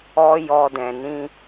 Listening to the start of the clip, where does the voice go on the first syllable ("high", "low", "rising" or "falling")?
high